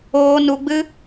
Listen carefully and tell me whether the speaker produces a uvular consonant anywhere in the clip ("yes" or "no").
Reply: no